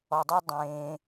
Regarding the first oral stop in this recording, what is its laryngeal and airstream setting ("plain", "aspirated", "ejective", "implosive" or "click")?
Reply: plain